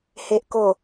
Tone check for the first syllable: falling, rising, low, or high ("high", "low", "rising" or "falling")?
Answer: low